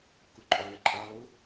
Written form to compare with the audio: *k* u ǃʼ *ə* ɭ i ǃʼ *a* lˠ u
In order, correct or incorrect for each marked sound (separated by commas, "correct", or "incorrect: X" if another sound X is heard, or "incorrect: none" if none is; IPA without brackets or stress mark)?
correct, incorrect: ɔ, correct